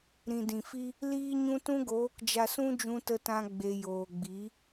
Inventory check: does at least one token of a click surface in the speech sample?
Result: no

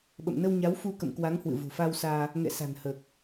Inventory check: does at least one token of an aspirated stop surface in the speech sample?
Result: no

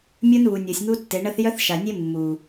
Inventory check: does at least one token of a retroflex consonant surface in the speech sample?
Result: yes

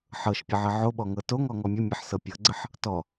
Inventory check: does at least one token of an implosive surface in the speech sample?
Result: yes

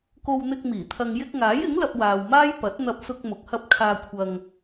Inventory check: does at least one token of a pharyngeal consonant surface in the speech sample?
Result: no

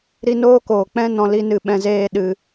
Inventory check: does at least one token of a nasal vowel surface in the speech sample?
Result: yes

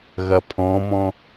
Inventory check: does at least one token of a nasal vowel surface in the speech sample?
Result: yes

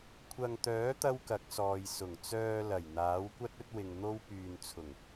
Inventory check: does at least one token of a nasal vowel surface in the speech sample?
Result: no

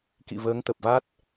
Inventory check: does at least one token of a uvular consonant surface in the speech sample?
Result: no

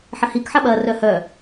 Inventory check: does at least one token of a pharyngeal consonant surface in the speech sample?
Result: yes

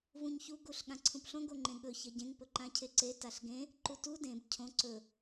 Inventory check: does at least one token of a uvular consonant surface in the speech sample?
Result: no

